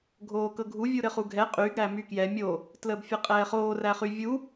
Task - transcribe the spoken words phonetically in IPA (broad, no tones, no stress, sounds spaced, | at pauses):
ɡʱ oː k ɤ ɡʱ u vʲ u ɾ ɘ χ u ɡʱ ɛ qʼ y ɡ ɾ æ m y k j ɛ mʲ o | t l əː b fʲ ɘ qʼ ɛː χ oː r æ χ y vʲ u